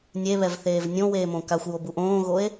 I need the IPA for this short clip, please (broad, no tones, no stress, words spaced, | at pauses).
nʲeβɛvθeːv nʲõweːmõ kaxʷjobuʔ õːɣoe̯